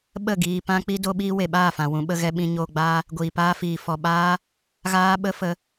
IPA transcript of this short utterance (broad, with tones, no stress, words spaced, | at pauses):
ɓə˦˨ɡiː˧ pã˦k͡pi˦ do˦ɓiː˦ we˨ɓaː˦˨fã˨ wũ˨ɓə˧ ɣɛ˧ɓĩ˧ɲoː˧ɡ͡baː˦ | ɡʷiː˨paː˦fiː˨ fɔ˨ɓaː˦ | ɣaː˦ɓə˦fə˧